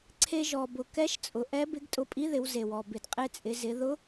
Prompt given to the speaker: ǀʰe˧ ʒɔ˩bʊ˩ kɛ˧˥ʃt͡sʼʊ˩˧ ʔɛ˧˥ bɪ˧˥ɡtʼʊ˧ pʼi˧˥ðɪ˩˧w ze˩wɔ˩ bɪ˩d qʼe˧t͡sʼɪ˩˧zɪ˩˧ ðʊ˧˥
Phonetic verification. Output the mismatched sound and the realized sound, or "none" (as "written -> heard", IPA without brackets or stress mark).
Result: none